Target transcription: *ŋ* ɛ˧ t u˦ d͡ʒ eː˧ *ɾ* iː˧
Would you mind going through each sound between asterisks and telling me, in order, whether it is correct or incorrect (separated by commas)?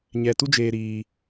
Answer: incorrect, correct